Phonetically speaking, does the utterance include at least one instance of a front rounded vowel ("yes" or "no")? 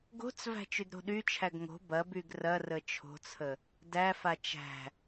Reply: yes